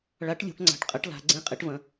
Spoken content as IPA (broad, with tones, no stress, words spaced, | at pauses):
ɭa˩˥ʈlʲo̤˩˧ʈŋ͡ǀa̤˩˧ʈ qʼɐ˩˥ʈla̤˩˧ɡ͡ǀẽ˧˥˧ qʼe˩˥ʈvɐ̃˩˧